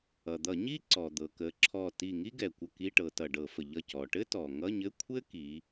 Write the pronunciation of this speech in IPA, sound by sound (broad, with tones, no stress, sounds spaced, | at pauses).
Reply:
ʌ˩ d̪ ʌ˧˩˧ ɲ i˥ ǀ ɔ˩ d̪ ɤ˩ k ə˩˧ ǁʰ ɔ˧˩ t i˧˩ ŋ i˥ ɡ ɛ˩ kʷ ə˧˩ k i˧˥˧ ʈ ɤ˩˧ t ʌ˩ ɖ ɤ˧˩˧ f ə˩ ʎ ʌ˧˩ c ɔ˩ ʈ ɘ˥ t ɔ˩ ŋ ʌ˧˥˧ ɲ ɘ˧˥˧ kʷʰ ɘ˥ k i˩˧